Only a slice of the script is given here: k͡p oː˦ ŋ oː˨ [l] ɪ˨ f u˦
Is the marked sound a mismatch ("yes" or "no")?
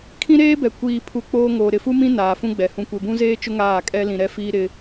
yes